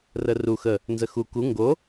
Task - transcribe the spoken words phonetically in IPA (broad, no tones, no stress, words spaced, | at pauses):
rəru xə | nzəxu ku ŋɡo